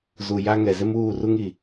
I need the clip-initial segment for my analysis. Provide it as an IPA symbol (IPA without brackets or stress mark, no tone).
z